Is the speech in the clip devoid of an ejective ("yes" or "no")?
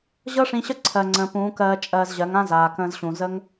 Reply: no